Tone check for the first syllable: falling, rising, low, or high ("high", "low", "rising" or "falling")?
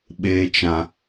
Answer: low